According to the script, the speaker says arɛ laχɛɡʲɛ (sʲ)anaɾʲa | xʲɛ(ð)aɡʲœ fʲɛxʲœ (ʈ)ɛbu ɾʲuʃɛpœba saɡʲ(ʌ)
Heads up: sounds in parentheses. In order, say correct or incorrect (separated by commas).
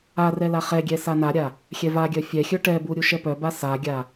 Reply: incorrect, incorrect, correct, incorrect